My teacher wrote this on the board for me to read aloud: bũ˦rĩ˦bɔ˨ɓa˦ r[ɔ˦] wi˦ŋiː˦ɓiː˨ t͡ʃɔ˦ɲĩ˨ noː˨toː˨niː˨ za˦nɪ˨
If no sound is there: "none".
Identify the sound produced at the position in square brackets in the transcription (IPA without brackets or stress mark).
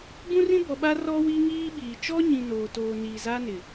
ɔ˦